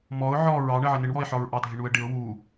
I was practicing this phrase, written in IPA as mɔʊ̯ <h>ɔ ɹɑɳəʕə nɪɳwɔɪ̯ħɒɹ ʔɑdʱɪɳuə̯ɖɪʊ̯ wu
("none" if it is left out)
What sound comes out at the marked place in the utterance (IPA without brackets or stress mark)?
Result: ʕ